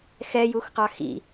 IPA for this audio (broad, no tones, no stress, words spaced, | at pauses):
xɛjuxqɑ xḭ